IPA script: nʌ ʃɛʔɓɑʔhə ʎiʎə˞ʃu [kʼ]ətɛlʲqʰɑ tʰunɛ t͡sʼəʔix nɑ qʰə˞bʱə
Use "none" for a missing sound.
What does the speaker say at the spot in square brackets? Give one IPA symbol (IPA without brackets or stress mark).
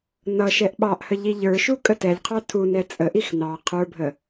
kʼ